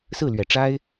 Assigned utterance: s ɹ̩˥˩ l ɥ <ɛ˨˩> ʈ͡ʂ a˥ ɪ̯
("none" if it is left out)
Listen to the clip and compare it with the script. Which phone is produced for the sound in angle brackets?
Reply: ɛ˨˩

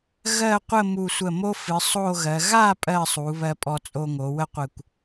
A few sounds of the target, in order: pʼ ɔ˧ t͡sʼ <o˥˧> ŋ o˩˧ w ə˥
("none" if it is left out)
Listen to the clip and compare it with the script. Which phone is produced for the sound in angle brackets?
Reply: o˧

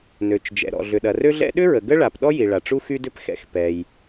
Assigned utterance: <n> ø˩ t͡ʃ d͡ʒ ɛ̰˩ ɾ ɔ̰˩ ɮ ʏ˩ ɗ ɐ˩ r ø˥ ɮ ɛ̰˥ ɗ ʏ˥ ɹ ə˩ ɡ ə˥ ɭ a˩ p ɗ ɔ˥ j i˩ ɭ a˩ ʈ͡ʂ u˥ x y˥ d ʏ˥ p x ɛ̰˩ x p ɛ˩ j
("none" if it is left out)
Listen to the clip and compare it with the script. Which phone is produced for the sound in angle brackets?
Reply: n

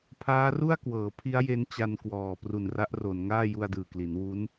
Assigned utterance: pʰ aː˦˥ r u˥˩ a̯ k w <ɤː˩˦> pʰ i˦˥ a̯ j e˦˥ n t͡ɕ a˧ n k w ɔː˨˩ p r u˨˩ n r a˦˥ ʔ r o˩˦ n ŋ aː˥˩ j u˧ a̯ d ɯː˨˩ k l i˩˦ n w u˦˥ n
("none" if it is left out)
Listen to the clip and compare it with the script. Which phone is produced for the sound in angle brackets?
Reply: ɤː˩˦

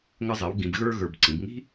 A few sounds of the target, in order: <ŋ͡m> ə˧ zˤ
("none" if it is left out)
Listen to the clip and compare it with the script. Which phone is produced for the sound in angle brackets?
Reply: ŋ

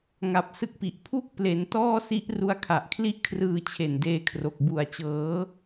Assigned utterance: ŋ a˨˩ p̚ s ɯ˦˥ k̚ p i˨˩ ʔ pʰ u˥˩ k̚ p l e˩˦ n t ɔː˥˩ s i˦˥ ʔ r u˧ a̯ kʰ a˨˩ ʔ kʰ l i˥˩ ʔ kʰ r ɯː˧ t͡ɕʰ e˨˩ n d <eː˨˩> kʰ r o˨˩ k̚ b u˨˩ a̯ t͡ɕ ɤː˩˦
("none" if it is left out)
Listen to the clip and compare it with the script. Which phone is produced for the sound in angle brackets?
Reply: eː˧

